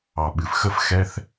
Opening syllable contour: low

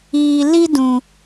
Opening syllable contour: low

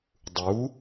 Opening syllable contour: rising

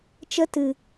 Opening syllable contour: high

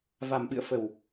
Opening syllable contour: low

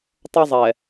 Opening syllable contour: high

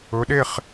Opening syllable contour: rising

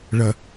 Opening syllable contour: low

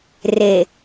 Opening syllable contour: low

